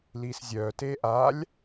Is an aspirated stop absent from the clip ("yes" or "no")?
yes